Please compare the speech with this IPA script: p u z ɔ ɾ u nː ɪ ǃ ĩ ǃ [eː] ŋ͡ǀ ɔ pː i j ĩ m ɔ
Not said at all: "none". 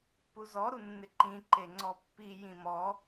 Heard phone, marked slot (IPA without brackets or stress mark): e